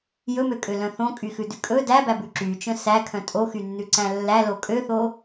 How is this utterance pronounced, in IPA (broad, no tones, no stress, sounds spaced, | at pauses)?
j ɵ m ø kʼ ø l œ̃ θ õ kʼ y x ʉ d ʉ kʼ ɵ d æ b æ b ʉ ǁ y t͡ʃ œ̃ s æ kʰ œ̃ tʼ o x y nː ʉ ǀ æ̃ lː æ l o kʼ ø θ o